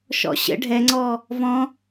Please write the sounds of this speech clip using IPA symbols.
ʃ ɔ̰ ɕ ə̰ ɖʱ ɛ ŋ͡ǀ ɔ | v ɔ̃

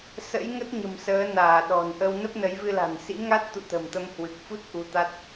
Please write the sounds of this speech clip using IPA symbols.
s ə̰˧˥ j ŋ ə˦˥ t̚ ɲ ə̤˨˩ m s əː˨˦ n aː˧˩ ɗ ɔ̤˨˩ n ʔ ə˧ w n ə˦˥ p̚ n ə˨˦ j v ɨ˧ l a̤˨˩ n s ḭ˧˥ ŋ a˦˥ t̚ t̪ ṵ˧˨ t̪ ə̤˨˩ m t̪ ə˧ m h w ɨ˨˩ k̚ f u˦˥ t̚ ʔ u˧ t̪ a˦˥ t̚

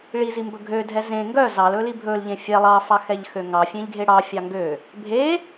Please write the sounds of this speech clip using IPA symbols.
ɭ i z i m b ɵ ɡʱ ø dʱ ɛ z ẽ ŋ ɡ œ z ɑ l ɵ l i bʱ ɵ l ʎ ẽ fʲ ɛ lˠ ɑ f ɑ x ɛ ʎ x ø ŋ ɑ fʲ ẽ ʎ ɡʱ e ɽ ɑ fʲ ɑ ŋ ɡ ø | bʱ e

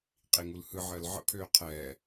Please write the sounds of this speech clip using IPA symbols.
qʼ i ŋ u l h ɯ ʕ əː l ʕ ə̰ pʰ øː qʰ ɛː

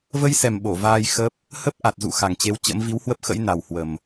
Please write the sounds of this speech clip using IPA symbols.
v ə˧ j s ɛ˨˩ m ɓ o˧˩ v aː˧ j x ə˦˥ p̚ | h ə˦˥ p̚ ʔ a˨˩ t̚ z ṵ˧˨ x a˨˩ ŋ t͡ɕ e˨˦ w t͡ɕ ə̰˧˥ m v i˨˦ w h w ə˦˥ p̚ x ə̰˧˥ j n a˨˩ w h w ə˨˩ m

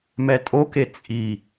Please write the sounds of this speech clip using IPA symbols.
m ɛ tʼ o k e t͡sʼ i

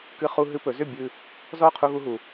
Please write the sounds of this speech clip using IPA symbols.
k ɨ˧ χ u˧ ɦ ɨ˧ p ɵ˩˧ z ʏ˥˨ bʲ ɨ˧ | z ɔ˥˨ qʰ u˧ ɣ u˧ ɦ u˩

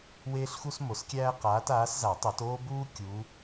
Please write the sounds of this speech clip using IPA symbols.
w eː˥ ɬ x u˥ s m o˨˦ s kʲ æː˥ q aː˨˦ t aː˨˦ s z a˨˩˦ tˤ u˨˩˦ t oː˥ b uː˥ kʲ u˨˦

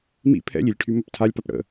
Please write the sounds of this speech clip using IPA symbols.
m ḭ pʰ ɛ̰ lʲ i lʲ ʈʰ y m ɵ p tʰ a lʲ p a p ɽ ə̰

